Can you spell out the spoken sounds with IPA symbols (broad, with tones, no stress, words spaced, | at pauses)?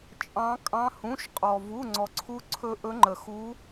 t͡ʃʼɑ̃˦˥ kʼɑ̃˦˥hũ˧˥˧ʃ qʼɔ˧ vu˧˥˧ŋ͡ǀɔ˧ǀʰu˦˥ǀʰɵ˦˥ ʔɵ˦˥ŋ͡ǃə˧xu˦˥